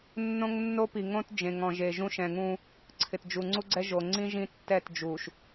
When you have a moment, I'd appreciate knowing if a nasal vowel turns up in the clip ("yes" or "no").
yes